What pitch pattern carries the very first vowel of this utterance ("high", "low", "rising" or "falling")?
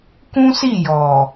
high